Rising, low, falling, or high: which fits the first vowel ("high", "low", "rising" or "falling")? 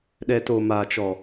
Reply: low